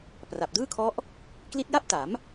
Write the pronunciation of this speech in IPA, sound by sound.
pra˨˩p̚dɯː˥˩kʰɔ˦˥ʔ | kli˦˥t̚ja˥˩p̚ta˩˦m

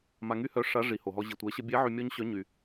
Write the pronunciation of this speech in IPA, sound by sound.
ma˧ŋy˥hœ˧˥ʂa˧˥ ʐi˩ho˩ɦɔ˧ ʑi˩tʷɛ˩˧ɕə˧bʲɛ˧˥ ʕy˧mʲɔ˥ɲɕœ˧˥ ɲy˩

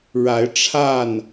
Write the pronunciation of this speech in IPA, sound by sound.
ɻa˨˦ɪ̯ʈ͡ʂʰa˥˨n

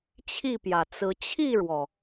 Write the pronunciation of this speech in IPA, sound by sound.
t͡ɕʰi˥˨pjä˩t͡sɹ̩˨˦ t͡ɕʰi˥˨ɻwɔ˩

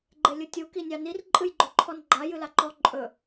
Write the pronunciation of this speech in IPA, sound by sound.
ɡ͡ǃelʲɯtʲu kinʲɑnir ǃʼɨjɡ͡ǃɵǃʰɔnɡ͡ǃa jɨlaǃɔ ǃʼɵ

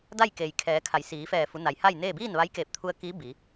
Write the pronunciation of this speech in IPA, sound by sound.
da˥˨jkeː˩j kʰɛː˩˧ kʰa˩˧jsiː˩˧fɛː˧˩ fu˩˧na˩jha˥˨jneː˥˨ biː˥˨nʋa˧˥jkeː˧˩p̚t̪ʰu˧ə̯ kiː˧˥bi˩˧

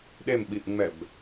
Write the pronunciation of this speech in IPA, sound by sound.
ɗemɓiʔŋ͡mɛb

